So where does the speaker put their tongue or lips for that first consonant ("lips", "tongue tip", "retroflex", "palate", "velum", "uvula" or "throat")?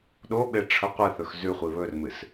tongue tip